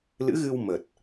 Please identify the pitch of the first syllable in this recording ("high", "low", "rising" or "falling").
rising